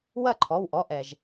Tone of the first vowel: falling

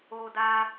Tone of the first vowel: high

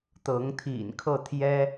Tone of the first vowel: rising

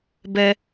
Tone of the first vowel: high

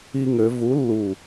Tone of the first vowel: high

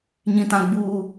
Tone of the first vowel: low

